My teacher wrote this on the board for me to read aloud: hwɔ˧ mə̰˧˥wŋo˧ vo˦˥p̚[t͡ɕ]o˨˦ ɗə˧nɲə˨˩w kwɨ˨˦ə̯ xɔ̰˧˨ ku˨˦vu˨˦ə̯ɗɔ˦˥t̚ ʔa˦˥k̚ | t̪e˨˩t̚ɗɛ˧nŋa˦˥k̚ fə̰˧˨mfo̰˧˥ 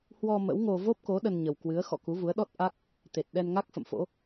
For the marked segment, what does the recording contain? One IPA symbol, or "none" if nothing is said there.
k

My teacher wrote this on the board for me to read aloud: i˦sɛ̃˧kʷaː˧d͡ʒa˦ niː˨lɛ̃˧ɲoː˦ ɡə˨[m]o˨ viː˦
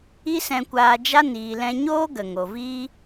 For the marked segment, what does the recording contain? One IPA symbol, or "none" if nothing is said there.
ŋ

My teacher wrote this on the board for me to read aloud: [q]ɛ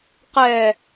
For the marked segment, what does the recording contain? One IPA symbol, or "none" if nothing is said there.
q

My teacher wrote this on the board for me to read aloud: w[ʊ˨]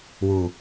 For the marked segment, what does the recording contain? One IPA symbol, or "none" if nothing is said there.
u˨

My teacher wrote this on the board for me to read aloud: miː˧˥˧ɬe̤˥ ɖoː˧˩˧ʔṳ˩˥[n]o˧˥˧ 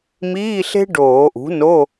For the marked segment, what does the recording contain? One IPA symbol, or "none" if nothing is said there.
n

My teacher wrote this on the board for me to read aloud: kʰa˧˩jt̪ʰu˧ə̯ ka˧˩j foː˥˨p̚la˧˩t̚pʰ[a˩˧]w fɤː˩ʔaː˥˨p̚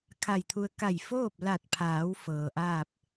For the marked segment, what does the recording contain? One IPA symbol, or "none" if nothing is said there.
aː˩˧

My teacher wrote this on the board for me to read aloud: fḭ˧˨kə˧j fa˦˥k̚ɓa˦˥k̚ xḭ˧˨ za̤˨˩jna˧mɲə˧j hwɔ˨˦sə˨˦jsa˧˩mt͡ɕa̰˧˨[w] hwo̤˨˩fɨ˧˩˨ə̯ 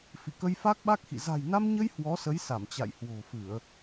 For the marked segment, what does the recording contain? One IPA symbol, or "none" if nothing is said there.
j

